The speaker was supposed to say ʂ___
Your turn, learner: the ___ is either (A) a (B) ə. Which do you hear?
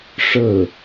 B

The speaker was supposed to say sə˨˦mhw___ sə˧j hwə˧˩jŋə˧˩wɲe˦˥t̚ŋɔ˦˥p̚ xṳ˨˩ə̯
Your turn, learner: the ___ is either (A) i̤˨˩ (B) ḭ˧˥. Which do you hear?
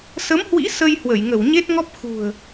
B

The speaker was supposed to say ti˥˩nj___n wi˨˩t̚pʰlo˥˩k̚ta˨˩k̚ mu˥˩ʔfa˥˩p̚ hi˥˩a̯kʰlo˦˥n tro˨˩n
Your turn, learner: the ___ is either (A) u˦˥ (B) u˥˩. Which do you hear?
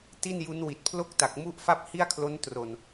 A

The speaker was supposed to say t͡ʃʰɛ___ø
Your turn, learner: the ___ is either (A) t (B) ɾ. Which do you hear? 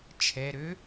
B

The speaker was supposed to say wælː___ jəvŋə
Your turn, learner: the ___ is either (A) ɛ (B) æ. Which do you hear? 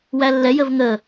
A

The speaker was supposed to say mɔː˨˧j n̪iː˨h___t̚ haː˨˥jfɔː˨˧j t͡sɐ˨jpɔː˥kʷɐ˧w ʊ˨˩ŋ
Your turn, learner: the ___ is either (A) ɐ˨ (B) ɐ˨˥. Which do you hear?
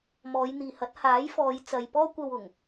B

